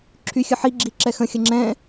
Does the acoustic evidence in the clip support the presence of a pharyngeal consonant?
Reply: yes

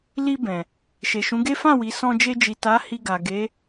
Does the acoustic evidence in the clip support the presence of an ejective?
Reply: no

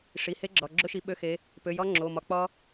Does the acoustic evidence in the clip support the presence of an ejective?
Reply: no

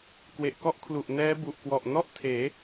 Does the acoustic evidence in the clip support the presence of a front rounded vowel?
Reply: no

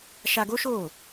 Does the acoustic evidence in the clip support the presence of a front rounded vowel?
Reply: no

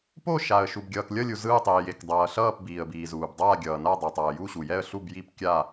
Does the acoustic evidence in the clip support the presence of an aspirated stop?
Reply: no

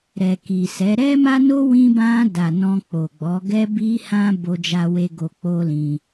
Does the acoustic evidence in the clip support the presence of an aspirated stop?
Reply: no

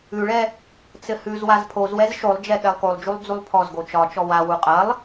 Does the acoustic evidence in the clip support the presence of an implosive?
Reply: yes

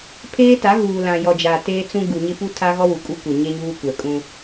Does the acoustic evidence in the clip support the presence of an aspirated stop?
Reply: yes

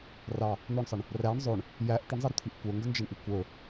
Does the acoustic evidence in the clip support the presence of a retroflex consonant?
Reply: yes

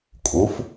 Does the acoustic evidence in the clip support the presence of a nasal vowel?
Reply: no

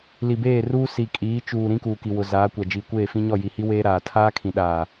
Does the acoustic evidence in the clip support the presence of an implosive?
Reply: yes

